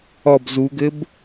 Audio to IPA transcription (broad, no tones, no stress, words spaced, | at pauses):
ɔb zuɡɘb